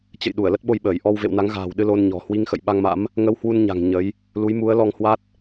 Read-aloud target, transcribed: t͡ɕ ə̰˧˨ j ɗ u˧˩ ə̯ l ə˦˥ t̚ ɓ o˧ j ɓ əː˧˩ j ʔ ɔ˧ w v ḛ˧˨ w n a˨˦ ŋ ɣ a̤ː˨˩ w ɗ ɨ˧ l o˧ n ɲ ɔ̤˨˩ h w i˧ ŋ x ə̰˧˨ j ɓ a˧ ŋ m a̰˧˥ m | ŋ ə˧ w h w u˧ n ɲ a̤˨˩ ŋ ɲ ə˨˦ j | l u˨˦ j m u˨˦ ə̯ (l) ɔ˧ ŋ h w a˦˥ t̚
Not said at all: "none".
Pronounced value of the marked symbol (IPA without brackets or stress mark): l